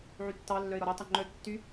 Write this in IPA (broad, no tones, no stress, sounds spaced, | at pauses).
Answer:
ʕ y tː ɑ lː œ ɪ̯ ɾ ɔ ɾ o tˤ œ ŋ͡ǃ œ tː y